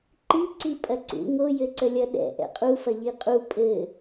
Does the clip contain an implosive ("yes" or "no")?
yes